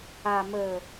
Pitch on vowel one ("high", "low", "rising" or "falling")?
low